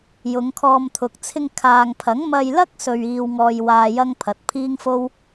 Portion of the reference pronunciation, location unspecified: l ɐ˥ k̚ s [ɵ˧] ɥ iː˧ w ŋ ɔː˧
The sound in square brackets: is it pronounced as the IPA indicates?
yes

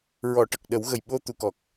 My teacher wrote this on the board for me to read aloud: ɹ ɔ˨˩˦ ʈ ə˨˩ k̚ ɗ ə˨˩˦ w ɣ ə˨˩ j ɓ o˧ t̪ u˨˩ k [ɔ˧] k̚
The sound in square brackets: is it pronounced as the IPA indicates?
no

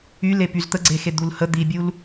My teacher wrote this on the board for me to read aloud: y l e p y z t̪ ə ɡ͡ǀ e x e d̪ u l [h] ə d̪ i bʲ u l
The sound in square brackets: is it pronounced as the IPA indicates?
yes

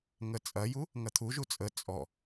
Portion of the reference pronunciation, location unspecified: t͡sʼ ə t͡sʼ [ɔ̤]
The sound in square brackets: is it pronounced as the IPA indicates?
no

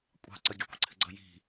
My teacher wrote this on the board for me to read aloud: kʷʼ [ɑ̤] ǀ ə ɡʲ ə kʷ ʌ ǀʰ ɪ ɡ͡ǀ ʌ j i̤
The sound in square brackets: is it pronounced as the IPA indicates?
yes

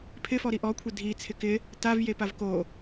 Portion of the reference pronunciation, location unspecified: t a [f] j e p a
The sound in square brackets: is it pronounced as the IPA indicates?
no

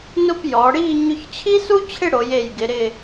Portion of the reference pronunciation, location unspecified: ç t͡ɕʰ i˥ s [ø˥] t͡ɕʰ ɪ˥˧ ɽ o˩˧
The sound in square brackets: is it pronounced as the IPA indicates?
no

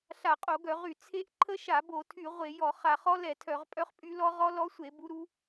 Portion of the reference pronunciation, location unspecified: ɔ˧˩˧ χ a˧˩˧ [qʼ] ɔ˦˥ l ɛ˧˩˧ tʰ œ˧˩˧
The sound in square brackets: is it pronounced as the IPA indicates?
no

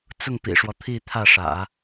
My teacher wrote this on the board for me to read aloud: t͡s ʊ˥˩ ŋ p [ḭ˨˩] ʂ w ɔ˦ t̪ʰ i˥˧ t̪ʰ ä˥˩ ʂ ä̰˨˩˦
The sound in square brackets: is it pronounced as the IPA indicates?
yes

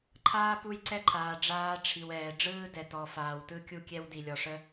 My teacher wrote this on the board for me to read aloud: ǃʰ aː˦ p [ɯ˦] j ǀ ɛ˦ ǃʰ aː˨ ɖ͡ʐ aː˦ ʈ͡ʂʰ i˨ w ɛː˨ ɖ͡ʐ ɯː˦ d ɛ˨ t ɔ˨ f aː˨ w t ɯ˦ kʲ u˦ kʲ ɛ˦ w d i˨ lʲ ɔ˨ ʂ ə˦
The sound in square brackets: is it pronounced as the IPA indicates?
no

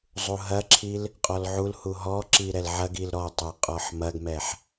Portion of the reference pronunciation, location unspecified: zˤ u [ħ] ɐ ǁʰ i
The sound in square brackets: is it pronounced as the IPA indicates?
no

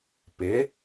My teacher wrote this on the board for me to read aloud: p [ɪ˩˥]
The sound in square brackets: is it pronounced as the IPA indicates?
yes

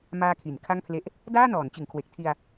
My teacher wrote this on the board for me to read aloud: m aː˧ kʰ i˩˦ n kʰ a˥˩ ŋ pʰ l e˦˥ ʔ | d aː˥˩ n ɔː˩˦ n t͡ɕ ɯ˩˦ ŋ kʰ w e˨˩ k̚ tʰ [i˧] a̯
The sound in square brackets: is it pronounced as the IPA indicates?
yes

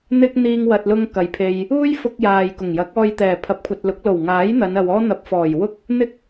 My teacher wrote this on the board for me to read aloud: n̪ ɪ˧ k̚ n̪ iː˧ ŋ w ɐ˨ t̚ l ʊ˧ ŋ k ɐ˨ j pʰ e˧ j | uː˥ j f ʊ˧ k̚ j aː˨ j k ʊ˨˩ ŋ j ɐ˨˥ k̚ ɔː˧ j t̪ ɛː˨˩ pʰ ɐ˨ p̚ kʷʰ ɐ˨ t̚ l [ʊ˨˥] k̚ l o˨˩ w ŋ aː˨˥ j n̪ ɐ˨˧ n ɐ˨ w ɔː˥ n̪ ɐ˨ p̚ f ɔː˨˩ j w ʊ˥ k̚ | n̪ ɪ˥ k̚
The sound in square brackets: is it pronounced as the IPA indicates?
yes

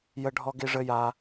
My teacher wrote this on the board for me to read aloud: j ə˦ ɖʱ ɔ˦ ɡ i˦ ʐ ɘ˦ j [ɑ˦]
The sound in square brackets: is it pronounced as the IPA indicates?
no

